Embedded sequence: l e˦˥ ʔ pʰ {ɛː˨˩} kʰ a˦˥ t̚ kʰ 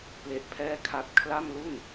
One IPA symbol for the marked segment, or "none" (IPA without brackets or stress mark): ɛː˥˩